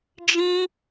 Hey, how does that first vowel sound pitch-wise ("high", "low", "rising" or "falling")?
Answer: high